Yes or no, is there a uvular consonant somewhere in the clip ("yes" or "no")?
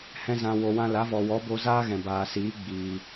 no